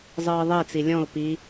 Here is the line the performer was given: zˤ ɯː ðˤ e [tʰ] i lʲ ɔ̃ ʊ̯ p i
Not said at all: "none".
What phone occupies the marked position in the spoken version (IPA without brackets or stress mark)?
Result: t͡s